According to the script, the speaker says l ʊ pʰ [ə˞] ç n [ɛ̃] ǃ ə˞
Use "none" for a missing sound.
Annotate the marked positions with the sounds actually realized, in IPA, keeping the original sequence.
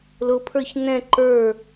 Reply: ə˞, ɛ̃

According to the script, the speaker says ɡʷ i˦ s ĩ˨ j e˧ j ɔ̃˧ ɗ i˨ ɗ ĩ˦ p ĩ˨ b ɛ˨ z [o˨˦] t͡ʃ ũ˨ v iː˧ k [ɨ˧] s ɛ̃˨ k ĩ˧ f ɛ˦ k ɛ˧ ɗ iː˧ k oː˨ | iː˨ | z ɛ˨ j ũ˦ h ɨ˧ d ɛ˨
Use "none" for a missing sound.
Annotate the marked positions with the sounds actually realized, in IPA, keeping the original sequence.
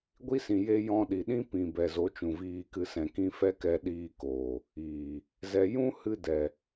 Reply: o˨˦, ɨ˧

